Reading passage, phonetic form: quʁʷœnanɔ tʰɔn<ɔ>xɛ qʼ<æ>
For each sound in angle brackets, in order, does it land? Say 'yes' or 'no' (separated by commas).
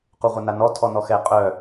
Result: yes, no